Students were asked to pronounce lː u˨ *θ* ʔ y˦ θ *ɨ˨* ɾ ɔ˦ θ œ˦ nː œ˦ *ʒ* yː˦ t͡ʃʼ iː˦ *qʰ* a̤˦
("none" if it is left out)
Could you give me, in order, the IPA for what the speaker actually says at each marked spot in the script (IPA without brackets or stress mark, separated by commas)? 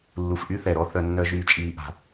f, ɛ˨, ʒ, ʔ